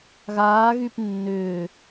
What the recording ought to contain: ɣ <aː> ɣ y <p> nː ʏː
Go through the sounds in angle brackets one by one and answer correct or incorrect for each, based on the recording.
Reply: correct, correct

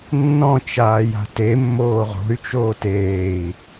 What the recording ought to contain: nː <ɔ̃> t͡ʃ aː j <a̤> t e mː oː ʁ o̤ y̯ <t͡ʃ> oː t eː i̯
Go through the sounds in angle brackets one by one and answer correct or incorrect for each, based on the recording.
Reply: correct, correct, correct

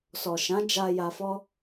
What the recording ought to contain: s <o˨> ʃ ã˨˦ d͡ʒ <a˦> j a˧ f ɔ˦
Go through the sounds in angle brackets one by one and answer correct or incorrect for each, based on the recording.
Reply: incorrect, incorrect

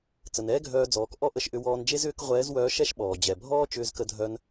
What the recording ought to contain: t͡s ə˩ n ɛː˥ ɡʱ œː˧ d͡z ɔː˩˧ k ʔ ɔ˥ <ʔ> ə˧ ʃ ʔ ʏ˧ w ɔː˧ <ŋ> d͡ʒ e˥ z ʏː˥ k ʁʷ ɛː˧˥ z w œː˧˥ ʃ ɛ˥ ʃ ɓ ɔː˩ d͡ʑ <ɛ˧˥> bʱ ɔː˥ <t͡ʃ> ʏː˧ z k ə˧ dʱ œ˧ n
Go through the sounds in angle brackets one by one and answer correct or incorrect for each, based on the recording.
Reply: correct, incorrect, incorrect, correct

